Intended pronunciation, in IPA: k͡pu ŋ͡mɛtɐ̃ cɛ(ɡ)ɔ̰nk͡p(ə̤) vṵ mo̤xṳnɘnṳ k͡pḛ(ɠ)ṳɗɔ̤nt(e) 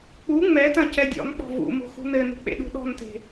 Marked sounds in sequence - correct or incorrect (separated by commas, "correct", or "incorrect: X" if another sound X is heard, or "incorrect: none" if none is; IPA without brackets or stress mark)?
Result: incorrect: dʲ, incorrect: ɔ̤, incorrect: ɗ, incorrect: e̤